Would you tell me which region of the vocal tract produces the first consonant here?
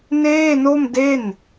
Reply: tongue tip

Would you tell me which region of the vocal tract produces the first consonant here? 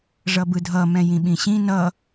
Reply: retroflex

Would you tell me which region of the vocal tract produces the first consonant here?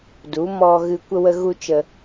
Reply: tongue tip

